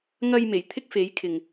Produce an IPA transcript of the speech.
ŋɐ˧jme˨˩j t̪ʰɪ˥k̚fe˨˥jkʰɪ˨ŋ

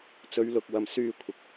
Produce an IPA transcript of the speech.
t͡sɵ˨˧ɥlʊ˨k̚wɐ˨m syː˧ kʷʰɪ˨k̚

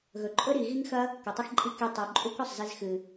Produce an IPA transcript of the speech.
ɣɵ˨ǃʼɵ˦ɾi˨ ɣi˦ŋxɐ˦ | kɵ˨tˤɐ˦xǃʼi˦ ke˧tˤo˨ǃʼu˦k ɵ˨sˤ zi˧zxɨ˨

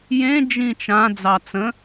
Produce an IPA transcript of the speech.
jẽ d͡ʒĩt͡ʃã d͡zɑt͡sə̃

